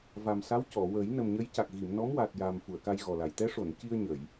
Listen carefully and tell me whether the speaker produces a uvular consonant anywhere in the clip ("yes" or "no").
no